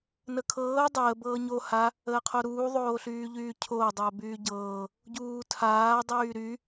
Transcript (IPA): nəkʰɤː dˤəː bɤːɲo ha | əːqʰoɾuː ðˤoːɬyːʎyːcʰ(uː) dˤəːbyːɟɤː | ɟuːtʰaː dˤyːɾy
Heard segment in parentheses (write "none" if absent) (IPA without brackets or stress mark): oː